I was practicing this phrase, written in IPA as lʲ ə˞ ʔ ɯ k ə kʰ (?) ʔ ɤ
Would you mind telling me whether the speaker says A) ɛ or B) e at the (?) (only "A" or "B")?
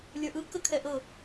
A